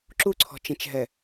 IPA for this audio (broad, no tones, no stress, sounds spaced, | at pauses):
ǁ u ǀʰ ɔ̤ t͡ʃ ẽ t͡ʃ ɦ ɛ